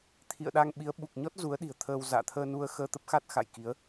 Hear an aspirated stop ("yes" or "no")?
yes